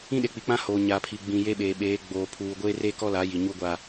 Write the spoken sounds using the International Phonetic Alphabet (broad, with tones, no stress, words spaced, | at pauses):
ĩ˦ɗe˨k͡pi˨ k͡pã˦hoː˨ ɲa˨pʰi˨ ɡ͡bĩ˨je˦ɓeː˨ɓeː˨˦ ɡ͡boː˨pʰuː˨ ɡʷeː˦re˦kɔ˦la˨˦ ji˨ɲu˦ɡʷa˦